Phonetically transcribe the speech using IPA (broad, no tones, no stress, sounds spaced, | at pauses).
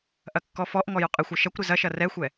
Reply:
ʔ ɐ kː ɔ f ɔ ʔ ŋ ɔ j ʊ qʼ ɪ xʷ ɐ ʃ ɐ kʷ ɾ ɪ z ɐ ʃ ɐ r ɛ xʷ ɛ